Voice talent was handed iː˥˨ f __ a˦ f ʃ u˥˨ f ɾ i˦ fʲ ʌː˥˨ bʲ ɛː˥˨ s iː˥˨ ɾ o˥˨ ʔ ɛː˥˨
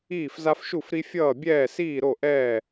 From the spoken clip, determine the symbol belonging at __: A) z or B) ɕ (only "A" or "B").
A